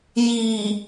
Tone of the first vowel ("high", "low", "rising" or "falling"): low